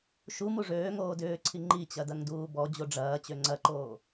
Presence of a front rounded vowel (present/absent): present